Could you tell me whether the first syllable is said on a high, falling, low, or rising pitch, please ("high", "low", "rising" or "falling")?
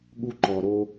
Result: low